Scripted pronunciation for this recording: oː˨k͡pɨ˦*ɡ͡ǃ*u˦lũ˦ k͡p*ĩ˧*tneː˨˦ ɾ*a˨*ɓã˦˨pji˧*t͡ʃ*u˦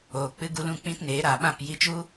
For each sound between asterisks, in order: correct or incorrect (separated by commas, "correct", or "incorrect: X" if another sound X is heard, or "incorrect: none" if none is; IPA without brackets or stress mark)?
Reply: incorrect: ɡ, incorrect: ĩ˦, correct, correct